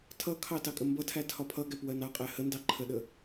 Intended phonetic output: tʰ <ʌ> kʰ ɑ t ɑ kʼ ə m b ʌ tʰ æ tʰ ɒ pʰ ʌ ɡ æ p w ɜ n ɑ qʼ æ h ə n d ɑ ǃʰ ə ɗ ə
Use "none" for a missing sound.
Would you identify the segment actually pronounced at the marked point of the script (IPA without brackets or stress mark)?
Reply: ʌ